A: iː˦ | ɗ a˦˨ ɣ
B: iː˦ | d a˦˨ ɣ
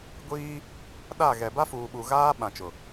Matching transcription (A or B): A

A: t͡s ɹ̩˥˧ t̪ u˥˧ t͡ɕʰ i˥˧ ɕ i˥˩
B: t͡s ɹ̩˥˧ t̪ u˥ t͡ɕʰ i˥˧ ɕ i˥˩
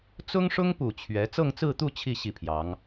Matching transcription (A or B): A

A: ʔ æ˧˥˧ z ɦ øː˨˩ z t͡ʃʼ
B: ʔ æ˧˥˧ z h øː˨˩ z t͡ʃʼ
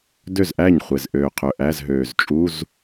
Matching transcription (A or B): A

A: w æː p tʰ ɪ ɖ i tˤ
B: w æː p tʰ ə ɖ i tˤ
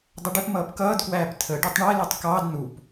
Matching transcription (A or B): B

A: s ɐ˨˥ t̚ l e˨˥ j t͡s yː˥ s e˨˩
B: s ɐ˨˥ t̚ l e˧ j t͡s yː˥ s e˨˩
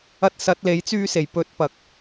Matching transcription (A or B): A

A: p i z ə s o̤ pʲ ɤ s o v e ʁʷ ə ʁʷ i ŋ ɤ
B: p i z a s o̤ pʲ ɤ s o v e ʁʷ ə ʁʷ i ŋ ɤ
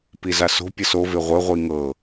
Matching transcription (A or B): B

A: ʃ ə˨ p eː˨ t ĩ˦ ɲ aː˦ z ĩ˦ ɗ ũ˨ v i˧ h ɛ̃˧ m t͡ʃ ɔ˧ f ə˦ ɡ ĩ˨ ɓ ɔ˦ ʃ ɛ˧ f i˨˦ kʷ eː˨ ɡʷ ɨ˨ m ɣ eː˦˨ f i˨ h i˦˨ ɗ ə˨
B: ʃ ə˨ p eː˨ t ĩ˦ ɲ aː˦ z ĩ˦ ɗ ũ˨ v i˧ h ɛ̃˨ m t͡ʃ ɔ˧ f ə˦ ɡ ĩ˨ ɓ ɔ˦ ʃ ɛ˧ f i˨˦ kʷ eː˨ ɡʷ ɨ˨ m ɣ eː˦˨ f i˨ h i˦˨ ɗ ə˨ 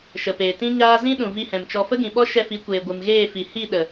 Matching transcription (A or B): B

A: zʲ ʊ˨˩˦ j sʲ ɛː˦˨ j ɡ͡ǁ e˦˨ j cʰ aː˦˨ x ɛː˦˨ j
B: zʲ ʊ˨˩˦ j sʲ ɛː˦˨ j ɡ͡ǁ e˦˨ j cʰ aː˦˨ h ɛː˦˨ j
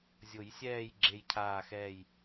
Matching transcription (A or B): A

